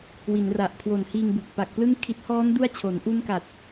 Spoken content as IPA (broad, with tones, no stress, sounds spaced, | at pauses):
w i˩˦ n r a˨˩ ʔ kʰ w o˨˩ n h iː˧ ŋ b u˨˩ k̚ p a˨˩ k̚ p l ɯ˥˩ ŋ kʰ i˦˥ t̚ h ɔː˦˥ n d u˦˥ a̯ t͡ɕʰ o˩˦ n ʔ u˦˥ n k a˨˩ t̚